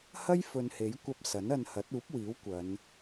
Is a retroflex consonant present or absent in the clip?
absent